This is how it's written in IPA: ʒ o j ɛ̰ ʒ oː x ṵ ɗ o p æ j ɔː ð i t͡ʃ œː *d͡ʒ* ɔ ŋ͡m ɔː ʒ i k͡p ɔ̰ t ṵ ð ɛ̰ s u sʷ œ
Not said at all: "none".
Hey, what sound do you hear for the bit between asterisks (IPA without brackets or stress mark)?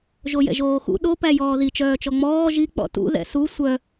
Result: t͡ʃ